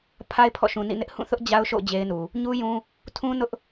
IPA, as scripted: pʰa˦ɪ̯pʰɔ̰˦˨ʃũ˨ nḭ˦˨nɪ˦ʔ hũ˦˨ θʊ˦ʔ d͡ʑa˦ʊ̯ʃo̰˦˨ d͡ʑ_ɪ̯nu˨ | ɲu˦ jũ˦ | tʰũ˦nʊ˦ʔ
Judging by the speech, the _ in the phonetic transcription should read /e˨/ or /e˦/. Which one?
e˦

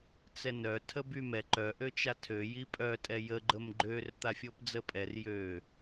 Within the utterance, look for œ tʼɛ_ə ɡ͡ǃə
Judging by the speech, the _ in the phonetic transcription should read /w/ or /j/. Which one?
j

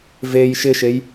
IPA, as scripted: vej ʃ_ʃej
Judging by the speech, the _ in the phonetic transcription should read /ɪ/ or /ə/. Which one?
ɪ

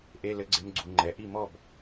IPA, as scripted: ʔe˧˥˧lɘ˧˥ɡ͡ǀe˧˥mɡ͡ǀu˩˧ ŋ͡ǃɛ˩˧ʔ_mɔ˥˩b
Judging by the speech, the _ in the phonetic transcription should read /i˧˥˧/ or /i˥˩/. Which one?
i˥˩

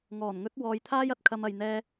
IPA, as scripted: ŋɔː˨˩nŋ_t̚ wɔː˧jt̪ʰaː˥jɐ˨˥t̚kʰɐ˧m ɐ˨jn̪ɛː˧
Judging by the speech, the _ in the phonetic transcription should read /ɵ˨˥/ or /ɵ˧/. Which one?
ɵ˨˥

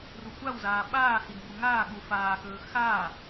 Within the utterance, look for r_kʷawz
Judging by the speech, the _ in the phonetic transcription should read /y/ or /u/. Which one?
u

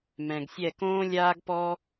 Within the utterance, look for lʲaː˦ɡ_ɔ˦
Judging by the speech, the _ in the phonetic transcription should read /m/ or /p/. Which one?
p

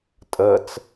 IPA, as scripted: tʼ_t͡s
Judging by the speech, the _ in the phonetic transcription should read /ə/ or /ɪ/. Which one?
ə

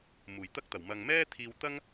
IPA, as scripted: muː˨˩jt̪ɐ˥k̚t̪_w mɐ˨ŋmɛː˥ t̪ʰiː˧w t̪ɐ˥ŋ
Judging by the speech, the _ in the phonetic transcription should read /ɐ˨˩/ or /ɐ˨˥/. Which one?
ɐ˨˩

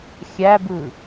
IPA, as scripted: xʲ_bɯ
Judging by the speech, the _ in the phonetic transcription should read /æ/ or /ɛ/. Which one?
æ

